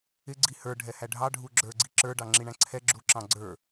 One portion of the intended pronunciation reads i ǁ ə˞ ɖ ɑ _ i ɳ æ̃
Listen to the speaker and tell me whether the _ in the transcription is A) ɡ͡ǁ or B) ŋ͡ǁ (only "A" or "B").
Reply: B